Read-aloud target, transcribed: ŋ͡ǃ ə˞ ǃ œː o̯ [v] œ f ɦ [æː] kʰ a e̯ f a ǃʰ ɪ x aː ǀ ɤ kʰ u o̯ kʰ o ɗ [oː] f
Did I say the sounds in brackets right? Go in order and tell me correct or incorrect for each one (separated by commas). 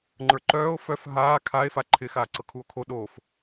incorrect, incorrect, correct